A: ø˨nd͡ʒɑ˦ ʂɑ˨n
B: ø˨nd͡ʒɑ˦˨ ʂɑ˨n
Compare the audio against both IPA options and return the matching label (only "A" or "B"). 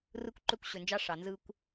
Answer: A